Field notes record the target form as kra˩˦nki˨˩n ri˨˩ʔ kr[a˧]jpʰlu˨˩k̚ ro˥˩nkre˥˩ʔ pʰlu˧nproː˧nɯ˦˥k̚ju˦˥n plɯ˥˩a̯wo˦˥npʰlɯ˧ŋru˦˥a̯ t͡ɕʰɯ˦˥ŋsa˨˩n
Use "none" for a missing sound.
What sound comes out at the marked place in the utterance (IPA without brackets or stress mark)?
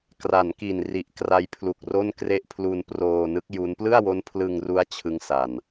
a˧